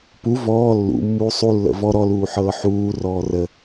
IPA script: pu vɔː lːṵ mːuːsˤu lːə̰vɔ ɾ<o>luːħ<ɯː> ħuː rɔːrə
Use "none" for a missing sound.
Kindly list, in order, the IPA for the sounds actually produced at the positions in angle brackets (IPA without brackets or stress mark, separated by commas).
ɔ, ɤː